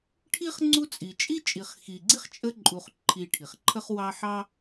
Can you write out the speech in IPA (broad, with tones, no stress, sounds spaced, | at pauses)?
ʈʰ i˥ χ ŋ͡ǀ u˥ t͡sʼ i˨ t͡ʃʼ i˥ t͡ʃʼ i˨ χ x i˨ ɡ͡ǀ i˥ χ t͡ʃʼ ə˦ ǃʼ u˨ χ ǃʰ i˨ ʈʰ i˩ χ ǃʰ ə˦ χ w ɑ˦ ħ ɑ˥